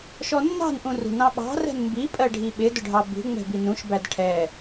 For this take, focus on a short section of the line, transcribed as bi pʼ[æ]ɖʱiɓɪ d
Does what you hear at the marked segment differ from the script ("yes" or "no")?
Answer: yes